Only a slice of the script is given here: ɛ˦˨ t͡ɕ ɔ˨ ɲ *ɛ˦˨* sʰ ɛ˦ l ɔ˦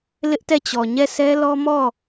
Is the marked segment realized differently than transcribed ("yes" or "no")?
no